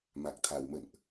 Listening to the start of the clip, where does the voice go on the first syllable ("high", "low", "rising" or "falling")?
low